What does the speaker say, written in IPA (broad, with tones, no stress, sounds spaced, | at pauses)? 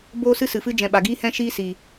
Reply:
b oː˦ s ɨ˦ s ɨ˨ f ɨ˦ d͡ʒ ɛ̃˨ ɓ a˨ ɡ iː˦ h ɛ̃˦ ʃ iː˦ s iː˨